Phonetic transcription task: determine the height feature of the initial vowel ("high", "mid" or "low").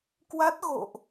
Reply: low